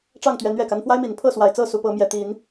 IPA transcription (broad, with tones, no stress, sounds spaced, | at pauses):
ʈ͡ʂ ɑ˥˨ ŋ t̪ ɥ ɛ˨˦ n ɥ ɛ˨˩ k a˦ n f w a˦ ɪ̯ m i˨˩ n pʰ ɤ˥˨ s w a˨˩ ɪ̯ t͡s ɤ˥˨ s u˨˦ p ɤ˨˦ m j ɛ˨˩ t̪ i˨˦ n